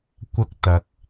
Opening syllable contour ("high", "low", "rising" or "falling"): high